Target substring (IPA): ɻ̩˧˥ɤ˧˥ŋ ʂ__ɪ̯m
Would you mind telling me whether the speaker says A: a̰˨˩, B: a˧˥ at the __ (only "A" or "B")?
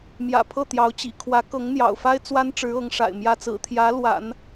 A